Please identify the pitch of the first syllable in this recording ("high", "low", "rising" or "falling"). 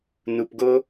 low